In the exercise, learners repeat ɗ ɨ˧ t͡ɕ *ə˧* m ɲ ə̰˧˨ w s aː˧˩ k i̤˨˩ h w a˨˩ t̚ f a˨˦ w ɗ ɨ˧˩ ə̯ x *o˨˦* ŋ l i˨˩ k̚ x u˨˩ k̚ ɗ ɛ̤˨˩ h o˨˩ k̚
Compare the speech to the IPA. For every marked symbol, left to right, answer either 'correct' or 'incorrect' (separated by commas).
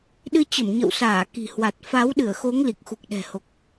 incorrect, correct